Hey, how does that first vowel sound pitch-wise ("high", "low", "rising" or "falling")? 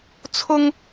high